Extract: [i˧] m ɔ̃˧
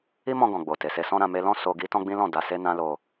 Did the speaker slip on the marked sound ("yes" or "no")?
yes